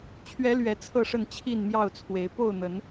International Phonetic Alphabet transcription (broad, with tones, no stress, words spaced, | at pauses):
t͡ɕʰɥɛ˨˦ lɥɛ˨˦t͡sʰɤ˥˨ʂə˥˨n t͡ɕʰi˥˨nmjɑ˥˨ʊ̯t͡sʰwe˨˦ɪ̯ po˥˨ʊ̯n̪ə˨˦n